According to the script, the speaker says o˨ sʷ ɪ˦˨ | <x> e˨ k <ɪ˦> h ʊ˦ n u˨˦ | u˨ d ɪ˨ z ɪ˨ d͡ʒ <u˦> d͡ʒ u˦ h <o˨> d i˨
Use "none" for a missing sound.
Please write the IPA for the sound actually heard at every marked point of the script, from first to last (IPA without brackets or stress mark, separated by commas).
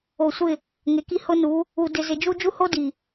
ŋ, i˦, u˦, o˦